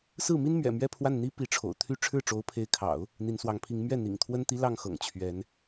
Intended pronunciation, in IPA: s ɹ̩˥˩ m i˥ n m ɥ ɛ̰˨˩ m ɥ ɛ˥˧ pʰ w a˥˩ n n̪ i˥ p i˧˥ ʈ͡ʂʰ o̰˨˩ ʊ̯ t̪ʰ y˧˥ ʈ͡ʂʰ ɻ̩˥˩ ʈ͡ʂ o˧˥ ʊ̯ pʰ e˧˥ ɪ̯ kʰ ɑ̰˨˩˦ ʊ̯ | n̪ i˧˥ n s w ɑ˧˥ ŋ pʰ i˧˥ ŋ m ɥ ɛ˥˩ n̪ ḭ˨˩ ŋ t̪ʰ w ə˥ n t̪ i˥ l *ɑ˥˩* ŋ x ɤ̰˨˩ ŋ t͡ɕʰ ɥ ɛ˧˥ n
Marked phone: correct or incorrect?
correct